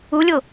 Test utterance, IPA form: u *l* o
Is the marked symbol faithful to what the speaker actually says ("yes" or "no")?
no